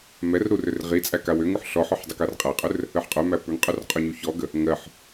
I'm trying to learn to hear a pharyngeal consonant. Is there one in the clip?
yes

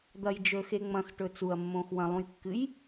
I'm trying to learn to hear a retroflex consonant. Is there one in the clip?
yes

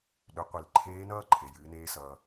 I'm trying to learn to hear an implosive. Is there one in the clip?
yes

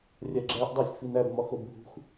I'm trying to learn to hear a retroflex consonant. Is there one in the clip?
no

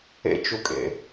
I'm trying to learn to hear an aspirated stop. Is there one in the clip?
no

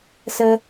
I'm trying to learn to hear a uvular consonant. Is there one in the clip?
no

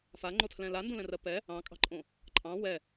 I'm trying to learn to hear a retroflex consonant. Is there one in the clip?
no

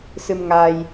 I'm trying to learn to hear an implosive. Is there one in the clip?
no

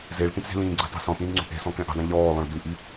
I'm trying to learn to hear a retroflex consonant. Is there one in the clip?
yes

